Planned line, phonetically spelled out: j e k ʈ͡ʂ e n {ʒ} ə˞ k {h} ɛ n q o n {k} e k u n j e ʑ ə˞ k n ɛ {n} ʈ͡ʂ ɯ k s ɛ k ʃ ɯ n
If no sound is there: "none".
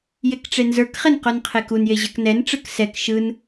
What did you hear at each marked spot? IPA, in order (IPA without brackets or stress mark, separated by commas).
z, χ, qʰ, n